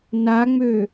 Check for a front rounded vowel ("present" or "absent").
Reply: present